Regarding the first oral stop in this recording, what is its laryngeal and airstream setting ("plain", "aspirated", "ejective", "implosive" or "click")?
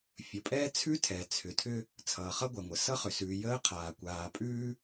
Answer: ejective